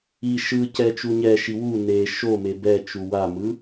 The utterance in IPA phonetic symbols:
i ʃɯ cɛt͡ʃuɲɛʃi wu ne ʃome bɛt͡ʃu wamɯ

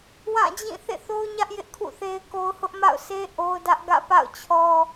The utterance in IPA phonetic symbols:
wã˦˨d͡ʑĩ˦˨ θḛ˦˨θo˦ʊ̯ɲä˦ʔ jɪ˦ʔkʰṵ˦˨θe˦ɪ̯ko˦ʊ̯ hʊ˦ʔma̰˦˨ʊ̯se˦ ʔo˦ʊ̯dä˦ʔ ɡä̰˦˨pa̰˦˨ʊ̯t͡ɕʰɔ˦

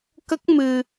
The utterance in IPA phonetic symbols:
kə˦˥k̚mɨ˧

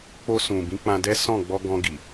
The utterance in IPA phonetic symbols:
k͡po˧sũ˨bĩ˨˦ k͡pã˧dɛ˦ sɔ̃˦˨ ɡ͡bɔ˧ɡɔ̃˧ ɡi˨

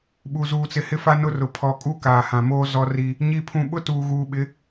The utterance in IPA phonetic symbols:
ɓu˨ zuː˨t͡sɪ˨hɪ˦fa˦ nʊ˦rʊ˨ pʰɔ˨kʼu˦ kaː˨hã˨moː˦ zɔ˦ri˦ | ɲi˦pʰũ˦ ɓʊ˦ tuː˨ɣuː˨ɓɪ˨˦

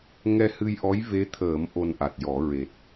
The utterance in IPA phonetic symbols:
ŋɛ˧hɨ˧jʔɔ˧˥j ve˧˥t̪ʰəː˨˩˦m ʔo˧nʔa˨˩t̚jɔ˨˩˦ ɹe˨˩t̚

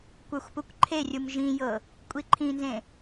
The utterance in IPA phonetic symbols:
kʷə˞xʷpukʷǃʰerʲum ʒĩjɤ | kʷʼiǃʰĩnzẽ

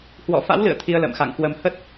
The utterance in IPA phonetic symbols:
hwɔ̰˧˨ fa̰˧˥wlɨ̰˧˨ə̯ t̪ʰi˧ə̯lə̰ː˧˨mxa̰˧˨ŋkwə˧m hə˦˥t̚

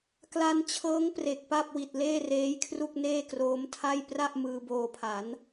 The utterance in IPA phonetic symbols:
kla˧nt͡ɕʰɤː˦˥ŋ pre˨˩k̚pa˥˩p̚wi˨˩t̚ leː˥˩reː˦˥jkʰru˥˩k̚ neː˥˩kroː˦˥mtʰa˥˩j pra˥˩ʔ mɯː˧boː˧pʰa˩˦n

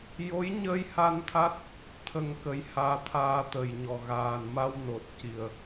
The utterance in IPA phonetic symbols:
jo˧˥jɲə˧jha˧nt̪ʰa˦˥t̚ | t̪ʰə˧ŋkə˧˥jhaː˧˥ t̪ʰaː˧t̪ə˨˩jɲɔ˨˩ ɣaː˨˩n ma˧wno˨˩t̚ci˨˩ə̯

